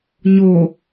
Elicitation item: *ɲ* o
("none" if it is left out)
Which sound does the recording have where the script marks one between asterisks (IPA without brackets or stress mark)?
ɲ